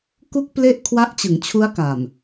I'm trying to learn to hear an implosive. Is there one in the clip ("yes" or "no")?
no